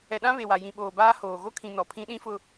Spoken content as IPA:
ɛ˨ ɗ ã˦ β e˨ w a˨ j ĩ˨ ɓ oː˨ b aː˦ h oː˨ ɣ o˦ kʰ ĩ˨ n ɔ˨ pʰ ĩ˦ ɗ ĩ˦ f ʊ˨

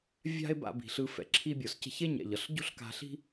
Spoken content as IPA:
vʲ a̤˥ e̯ b a̰˧ b i̤˩ ɬ ɯ˧ f ɛ̰˩ ǁʰ i˧ bʲ o˩ s c e̤˧ ç e˥ ɲ ɛ̰˩ ʎ ʌ˩ ɬ ɟ o̤˥ ɬ k a̤˧ ɬ i̤˥

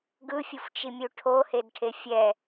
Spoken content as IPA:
ɡ ɯ fʲ u f t͡ʃ i mʲ u ʈʰ o h e d ʈʰ e fʲ ɛ

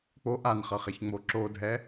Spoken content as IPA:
k͡p o ʔ a n χ ʌ χ ɛ ç ŋ͡m o ǁ o dʱ ɛ

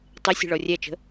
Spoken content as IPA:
tˤ e sʲ ɛ̤ ɭ ɔ rʲ æ t͡ʃ ə̤

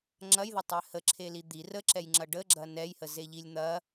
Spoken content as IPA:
ŋ͡ǁ ɐ j ð ɐ tˤ ɛ h ə ǁʰ e l i d̪ i r ə ǁ ɛ j ŋ͡ǁ ɐ ɖ ə ɡ͡ǁ ɐ n ɛ j h ə z e ʎ i lʲ n̪ ɐ

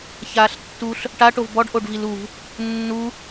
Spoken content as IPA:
ç aː ɬ tː u ɬ | ʈ a ʈ o v b ɔ ɖ ʔ o ɖ v i l u v | nː u

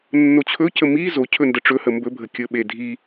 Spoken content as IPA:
nː o t͡ɕʰ ɵ c ə m i z o cʰ ɵ n d ə ʈ͡ʂ ɵ h ə m b ɵ bʱ ə kʲ ɵ ɓ e dʱ i

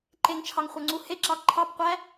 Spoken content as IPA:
ǃ e ŋ t͡ʃʰ ɑ ŋ χʷ œ ŋ͡ǀ u h e ǁ ɑ ǃʰ ɑ p qʷ æ

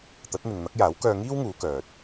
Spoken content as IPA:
t̪ ɐ˨˥ t̚ n̪ ɪ˨ ŋ n̪ ɐ˨˥ k̚ j aː˨˥ w k œː˧ ŋ iː˥ w ŋ uː˨˧ k œː˨ t̚

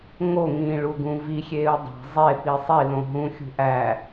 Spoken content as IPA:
ŋ o ŋ ĩː ɭ u ɡ ũ v i xʲ eː u̯ dˤ æ̤ zˤ e p i sˤ i l õ ɦ ũ xʲ ṳ ʔ æ

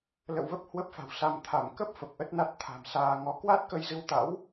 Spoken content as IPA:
l ə̰˧˨ w v ə˦˥ p̚ h w ə˦˥ p̚ f a̤˨˩ w s a˧ m t̪ʰ a˧˩ m k ə˦˥ p̚ f ə˨˩ p̚ ʔ ə˦˥ t̚ n a˦˥ t̚ t̪ʰ a̤˨˩ m s aː˧ ŋ ɔ˨˦ k w a˦˥ t̚ k ə˧ j z ɨ˧ w t̪ a̰˧˥ w

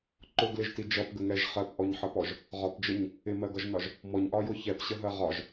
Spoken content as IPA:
ǃ ʊ ɡ l ɪ ʒ t i d͡ʒ ʌ p ɡ ə ŋ ɛ ʒ χ ɜ p ʔ ɔ ɲ ħ ʌ p ɔ ʒ | ʁ ɒ p d͡ʒ ə ɲ | ɪ m ɜ ɡ ʌ ʒ n ɒ ʒ | m ɔ ɲ ʔ ɒ j ʊ ç ɛ p ɕ ə ɦ ɜ ʁ ɒ ʒ

